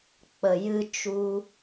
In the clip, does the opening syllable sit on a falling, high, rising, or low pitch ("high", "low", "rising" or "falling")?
low